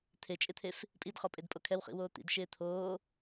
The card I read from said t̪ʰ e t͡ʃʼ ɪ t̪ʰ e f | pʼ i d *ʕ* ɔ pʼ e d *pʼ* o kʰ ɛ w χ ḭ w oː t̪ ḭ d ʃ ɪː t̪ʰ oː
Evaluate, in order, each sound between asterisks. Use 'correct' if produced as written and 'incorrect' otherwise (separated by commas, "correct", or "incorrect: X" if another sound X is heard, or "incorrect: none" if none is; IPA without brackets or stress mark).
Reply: incorrect: χ, correct